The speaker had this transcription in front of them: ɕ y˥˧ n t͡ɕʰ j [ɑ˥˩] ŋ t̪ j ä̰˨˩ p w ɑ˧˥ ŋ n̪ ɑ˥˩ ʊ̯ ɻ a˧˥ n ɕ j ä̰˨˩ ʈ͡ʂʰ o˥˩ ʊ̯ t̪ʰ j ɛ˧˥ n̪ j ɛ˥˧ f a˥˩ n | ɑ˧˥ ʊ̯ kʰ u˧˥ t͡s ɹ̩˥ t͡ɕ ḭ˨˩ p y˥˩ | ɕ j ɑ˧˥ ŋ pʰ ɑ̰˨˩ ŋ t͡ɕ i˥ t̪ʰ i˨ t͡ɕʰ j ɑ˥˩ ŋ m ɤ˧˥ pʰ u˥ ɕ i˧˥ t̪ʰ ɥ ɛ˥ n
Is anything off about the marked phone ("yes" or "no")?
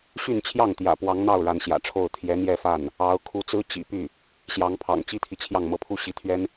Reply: no